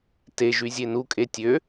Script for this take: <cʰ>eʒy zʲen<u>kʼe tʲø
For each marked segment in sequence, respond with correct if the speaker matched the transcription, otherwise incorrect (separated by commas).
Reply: incorrect, correct